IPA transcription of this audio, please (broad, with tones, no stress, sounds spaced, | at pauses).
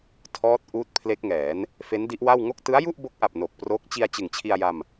tʰ ɔː˦˥ t̚ ʔ uː˦˥ t̚ pʰ l e˦˥ k̚ ŋ ɛː˩˦ n | f e˦˥ n d i˦˥ ʔ w a˥˩ w ŋ o˥˩ k̚ t ɯ˦˥ a̯ j u˥˩ ʔ b o˦˥ k̚ ʔ a˨˩ p̚ n o˨˩ k̚ p r o˦˥ k̚ t͡ɕ i˧ a̯ t͡ɕ ɯ˨˩ ŋ t͡ɕʰ i˧ a̯ j a˧ m